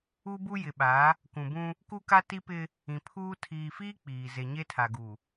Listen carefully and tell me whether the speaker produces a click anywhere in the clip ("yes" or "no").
no